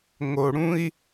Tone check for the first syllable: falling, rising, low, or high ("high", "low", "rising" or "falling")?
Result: low